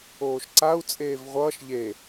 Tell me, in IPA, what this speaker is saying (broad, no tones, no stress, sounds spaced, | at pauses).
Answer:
oː ʃ ǀ a u̯ t͡sʼ eː v ʁʷ ʌː ʃ ʎ e